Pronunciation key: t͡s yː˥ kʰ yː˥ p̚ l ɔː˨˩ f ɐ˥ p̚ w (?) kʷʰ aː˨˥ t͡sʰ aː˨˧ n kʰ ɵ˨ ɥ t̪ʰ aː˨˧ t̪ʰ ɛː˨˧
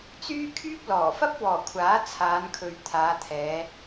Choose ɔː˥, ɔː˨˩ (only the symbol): ɔː˨˩